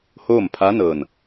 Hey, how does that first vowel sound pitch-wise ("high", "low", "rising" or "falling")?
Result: falling